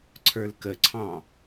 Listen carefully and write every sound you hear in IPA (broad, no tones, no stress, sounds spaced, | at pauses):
ǀʰ ə˞ l k ə ǀʰ ɑ̃